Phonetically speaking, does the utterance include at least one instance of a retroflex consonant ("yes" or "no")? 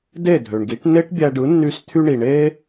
yes